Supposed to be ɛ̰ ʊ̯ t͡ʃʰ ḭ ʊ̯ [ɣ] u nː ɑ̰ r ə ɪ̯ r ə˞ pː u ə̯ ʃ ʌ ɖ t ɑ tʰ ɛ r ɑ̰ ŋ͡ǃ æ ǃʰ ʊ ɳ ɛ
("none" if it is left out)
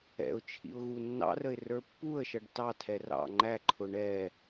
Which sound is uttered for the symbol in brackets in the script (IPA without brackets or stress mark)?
ɣ